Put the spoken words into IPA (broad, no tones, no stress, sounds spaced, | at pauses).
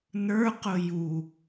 n ə˞ q ʊ j u